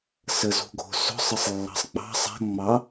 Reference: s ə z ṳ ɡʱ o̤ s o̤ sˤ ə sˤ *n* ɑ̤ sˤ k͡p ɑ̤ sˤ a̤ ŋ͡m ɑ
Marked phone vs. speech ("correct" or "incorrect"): incorrect